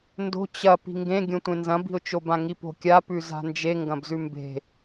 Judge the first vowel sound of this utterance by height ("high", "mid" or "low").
mid